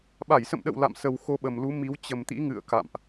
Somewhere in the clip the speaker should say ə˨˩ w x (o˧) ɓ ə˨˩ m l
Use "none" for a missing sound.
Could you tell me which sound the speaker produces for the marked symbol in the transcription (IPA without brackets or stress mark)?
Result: o˧